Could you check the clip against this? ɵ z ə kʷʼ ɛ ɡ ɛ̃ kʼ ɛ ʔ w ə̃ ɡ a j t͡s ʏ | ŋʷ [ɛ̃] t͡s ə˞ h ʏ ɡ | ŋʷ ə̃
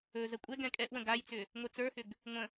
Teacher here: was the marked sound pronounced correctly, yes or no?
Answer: no